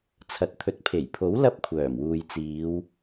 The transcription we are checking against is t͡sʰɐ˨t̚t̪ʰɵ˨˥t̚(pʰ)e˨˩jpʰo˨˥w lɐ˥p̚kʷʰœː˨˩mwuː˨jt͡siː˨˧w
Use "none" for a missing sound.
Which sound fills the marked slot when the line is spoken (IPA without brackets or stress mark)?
pʰ